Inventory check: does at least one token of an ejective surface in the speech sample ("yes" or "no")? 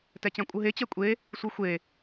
yes